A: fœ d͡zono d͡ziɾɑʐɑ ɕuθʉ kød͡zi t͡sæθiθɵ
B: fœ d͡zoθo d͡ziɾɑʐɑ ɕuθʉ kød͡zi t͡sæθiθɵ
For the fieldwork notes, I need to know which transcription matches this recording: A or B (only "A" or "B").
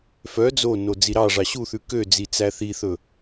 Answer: A